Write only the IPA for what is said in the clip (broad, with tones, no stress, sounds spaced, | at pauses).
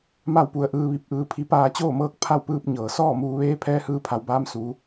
m a˥˨ w p u˧ ə̯ ʔ ɯː˧ ʋ i˧ p̚ ʔ ɯː˧ pʰ i˧˥ p aː˧ t͡ɕ oː˥˨ m ɤː˥˨ k̚ pʰ a˥˨ w p ɯː˧ p̚ ɲ ɤː˩ s ɔː˥˨ m uː˧ ʋ eː˧˥ pʰ ɛː˧ h ɯː˧ pʰ a˩˧ w b aː˧ m s uː˩˧